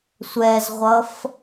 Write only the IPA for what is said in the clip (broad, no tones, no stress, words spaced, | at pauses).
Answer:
sʷɛzʁʷʌf